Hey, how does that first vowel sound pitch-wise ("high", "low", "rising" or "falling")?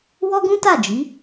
high